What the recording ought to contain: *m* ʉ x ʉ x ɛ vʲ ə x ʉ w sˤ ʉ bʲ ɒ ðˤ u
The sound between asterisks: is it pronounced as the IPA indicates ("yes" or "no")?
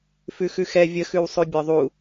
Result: no